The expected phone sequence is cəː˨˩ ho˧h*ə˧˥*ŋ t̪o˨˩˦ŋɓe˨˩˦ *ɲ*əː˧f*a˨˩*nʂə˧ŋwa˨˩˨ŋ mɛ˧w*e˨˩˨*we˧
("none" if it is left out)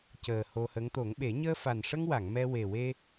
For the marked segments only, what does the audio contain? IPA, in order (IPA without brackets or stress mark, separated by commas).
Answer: ə˧˥, ɲ, a˨˩, e˨˩